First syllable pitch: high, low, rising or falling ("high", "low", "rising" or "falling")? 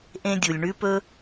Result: high